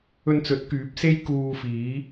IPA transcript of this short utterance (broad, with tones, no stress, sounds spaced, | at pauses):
ɵ˧ n t͡s ɵ˨˥ t̚ k yː˨˥ p̚ s e˥ j k uː˧ f iː˨˥